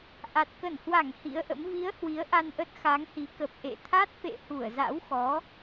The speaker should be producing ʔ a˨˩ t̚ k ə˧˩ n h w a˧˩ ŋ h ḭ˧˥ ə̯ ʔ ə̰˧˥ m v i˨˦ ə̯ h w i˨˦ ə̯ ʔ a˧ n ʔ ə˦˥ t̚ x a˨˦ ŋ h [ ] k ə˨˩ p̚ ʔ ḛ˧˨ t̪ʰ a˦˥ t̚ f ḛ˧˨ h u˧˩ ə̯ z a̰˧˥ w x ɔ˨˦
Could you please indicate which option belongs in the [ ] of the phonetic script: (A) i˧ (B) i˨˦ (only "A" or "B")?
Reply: B